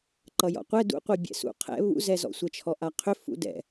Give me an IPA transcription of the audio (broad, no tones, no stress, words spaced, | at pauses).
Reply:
ǃʌjɔ̰qʷɛ dṵqʷi bʲɛ̰sṵ qʰɛ̰ βṵzɛzɔ̰ sʷɛt͡ʃʰɔʔaqʰʏ fṵdɛ̰